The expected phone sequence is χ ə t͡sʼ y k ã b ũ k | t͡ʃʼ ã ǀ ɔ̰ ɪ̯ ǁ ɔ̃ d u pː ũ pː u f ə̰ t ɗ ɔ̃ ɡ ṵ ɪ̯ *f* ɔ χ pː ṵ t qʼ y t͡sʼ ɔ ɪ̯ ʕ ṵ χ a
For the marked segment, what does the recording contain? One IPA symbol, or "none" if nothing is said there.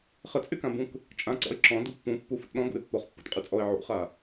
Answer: pː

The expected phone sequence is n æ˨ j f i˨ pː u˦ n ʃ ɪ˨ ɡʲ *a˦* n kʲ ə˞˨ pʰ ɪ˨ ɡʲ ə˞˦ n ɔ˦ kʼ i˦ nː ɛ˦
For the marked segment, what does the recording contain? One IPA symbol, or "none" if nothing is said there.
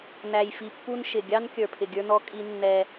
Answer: ɑ˦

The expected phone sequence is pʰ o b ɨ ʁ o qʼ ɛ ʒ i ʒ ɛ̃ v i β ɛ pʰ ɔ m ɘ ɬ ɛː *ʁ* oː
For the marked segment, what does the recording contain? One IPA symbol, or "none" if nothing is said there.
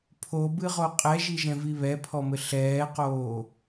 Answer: q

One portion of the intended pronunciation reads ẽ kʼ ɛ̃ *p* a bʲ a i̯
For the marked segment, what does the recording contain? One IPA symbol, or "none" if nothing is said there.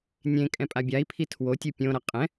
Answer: pʼ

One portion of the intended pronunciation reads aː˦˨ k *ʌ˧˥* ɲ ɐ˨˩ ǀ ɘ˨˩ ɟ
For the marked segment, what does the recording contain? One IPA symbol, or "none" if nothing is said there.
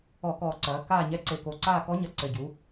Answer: ɔ˧˥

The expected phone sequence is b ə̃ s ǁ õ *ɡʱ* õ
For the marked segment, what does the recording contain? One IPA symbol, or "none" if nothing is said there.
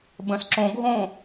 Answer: ɡʱ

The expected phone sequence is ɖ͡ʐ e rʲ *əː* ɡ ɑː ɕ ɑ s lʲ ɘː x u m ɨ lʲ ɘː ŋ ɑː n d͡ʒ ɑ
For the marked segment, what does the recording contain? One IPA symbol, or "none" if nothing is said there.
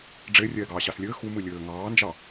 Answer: ɛː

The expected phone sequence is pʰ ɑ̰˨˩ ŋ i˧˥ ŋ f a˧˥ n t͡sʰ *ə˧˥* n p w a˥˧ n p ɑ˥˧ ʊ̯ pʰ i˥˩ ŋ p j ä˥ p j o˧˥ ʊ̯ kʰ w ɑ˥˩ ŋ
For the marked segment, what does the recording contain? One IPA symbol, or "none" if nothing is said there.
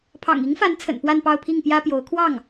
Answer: ə̰˨˩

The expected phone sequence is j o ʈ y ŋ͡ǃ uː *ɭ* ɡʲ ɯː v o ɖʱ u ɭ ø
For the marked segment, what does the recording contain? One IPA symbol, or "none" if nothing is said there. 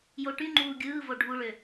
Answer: none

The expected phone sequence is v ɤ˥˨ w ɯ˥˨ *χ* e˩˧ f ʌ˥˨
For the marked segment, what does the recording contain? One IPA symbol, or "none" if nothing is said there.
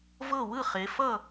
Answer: χ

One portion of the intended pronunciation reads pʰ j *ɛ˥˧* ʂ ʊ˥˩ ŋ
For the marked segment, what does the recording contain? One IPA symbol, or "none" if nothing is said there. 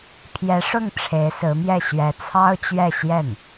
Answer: ɛ˧˥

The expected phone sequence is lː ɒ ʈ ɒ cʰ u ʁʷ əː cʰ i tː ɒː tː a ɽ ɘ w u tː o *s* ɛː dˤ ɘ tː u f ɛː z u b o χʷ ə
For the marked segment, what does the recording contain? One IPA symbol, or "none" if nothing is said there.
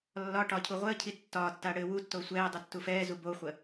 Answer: sʷ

